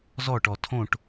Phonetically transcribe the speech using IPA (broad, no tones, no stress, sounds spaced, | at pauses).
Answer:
z ɔ ʈ ɔ tʰ õ ʈ